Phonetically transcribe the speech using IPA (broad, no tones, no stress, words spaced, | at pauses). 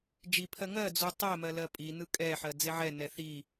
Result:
d͡ʒipʰɜ ŋɜd͡zu tˤɜmɜ lɜpʼinɯ kʼɛħɜ d͡zeʕɛnɛ θi